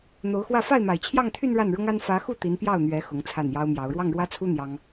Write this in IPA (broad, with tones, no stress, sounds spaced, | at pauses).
n̪ o˧˥ ʊ̯ x w ä˥˧ f a˥˩ ɪ̯ m a˨˩ ɪ̯ t͡ɕʰ j ɑ˥˧ ŋ t̪ʰ y˥˧ n ɻ a˥˩ n ɻ ʊ˥ ŋ a˥ n f ä˧˥ x u˥˩ t̪ i˧˥ n p j ɑ˥˩ ʊ̯ n̪ ɥ ɛ˧˥ x ʊ˧˥ ŋ t͡sʰ a˥˩ n j ɑ˥ ʊ̯ m j ɑ˧˥ ʊ̯ ɻ w ɑ˥˩ ŋ ɻ w ä˥ t͡sʰ u˥ n̪ j ɑ˥ ŋ